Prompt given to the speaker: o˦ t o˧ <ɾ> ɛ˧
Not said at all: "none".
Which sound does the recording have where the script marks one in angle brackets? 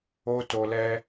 l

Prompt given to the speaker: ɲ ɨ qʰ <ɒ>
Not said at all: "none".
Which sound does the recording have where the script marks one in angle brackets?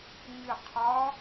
ɒ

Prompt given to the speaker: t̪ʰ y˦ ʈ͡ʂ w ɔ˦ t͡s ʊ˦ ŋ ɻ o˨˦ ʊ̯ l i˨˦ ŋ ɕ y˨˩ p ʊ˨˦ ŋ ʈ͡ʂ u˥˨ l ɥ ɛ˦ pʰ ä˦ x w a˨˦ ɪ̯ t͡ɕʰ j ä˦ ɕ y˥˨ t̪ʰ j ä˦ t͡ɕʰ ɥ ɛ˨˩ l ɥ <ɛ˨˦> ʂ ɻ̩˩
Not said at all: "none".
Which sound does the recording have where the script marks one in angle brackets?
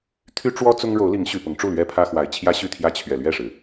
ɛ˥˨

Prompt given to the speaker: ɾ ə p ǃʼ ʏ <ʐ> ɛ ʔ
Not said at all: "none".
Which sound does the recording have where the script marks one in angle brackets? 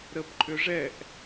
ʐ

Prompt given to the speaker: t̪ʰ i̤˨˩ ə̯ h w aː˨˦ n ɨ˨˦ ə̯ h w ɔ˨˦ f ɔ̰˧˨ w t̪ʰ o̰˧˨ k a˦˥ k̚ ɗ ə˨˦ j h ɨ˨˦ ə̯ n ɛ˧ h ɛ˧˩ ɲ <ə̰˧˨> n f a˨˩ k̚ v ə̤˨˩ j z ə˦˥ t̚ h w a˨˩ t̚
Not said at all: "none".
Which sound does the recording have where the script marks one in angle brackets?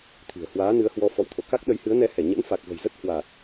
ə̰˧˥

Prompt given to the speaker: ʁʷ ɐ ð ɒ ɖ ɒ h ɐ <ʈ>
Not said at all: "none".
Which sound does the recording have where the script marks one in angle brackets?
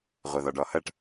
ʈ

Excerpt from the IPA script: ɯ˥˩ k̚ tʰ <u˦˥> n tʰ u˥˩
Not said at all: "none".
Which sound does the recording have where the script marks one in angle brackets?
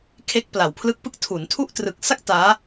u˩˦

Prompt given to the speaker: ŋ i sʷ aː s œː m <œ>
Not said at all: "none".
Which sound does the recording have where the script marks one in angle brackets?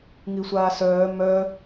œ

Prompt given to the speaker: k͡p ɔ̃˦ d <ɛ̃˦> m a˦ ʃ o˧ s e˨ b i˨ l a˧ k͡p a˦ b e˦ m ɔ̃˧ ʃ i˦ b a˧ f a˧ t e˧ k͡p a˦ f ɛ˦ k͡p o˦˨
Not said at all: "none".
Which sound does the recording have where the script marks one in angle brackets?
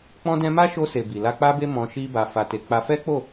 ɛ̃˦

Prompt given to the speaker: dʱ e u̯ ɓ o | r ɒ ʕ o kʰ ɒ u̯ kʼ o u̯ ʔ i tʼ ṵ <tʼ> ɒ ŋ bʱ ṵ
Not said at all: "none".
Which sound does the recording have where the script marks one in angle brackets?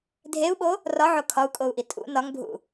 n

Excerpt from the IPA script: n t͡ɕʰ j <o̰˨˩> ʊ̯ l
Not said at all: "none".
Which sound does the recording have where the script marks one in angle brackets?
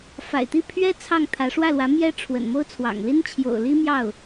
o̰˨˩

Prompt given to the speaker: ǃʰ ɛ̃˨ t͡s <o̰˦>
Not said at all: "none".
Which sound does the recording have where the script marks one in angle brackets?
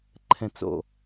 o̰˨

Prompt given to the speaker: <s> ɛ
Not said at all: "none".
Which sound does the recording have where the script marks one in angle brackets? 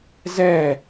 z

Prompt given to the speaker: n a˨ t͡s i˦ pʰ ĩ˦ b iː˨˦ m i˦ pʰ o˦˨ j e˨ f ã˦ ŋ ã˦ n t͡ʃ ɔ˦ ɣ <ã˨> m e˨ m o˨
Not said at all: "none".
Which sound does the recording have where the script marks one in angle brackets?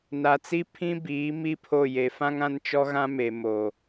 ã˦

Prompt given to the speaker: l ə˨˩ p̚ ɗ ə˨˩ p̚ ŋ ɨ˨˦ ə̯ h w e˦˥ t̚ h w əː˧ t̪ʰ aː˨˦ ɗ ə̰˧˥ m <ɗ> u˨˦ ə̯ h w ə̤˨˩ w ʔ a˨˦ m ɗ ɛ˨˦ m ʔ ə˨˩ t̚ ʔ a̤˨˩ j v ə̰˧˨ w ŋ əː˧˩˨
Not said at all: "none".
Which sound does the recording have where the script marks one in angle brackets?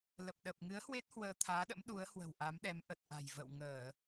ɗ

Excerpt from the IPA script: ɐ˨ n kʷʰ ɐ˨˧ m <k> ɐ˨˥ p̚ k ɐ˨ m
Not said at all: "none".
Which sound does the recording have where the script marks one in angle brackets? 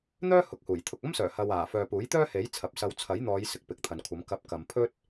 k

